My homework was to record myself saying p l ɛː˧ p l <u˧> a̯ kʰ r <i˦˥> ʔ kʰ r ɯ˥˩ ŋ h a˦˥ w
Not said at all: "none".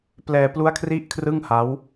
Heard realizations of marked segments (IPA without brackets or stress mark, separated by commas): u˦˥, i˦˥